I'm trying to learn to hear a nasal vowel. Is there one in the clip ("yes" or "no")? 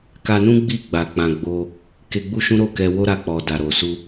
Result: yes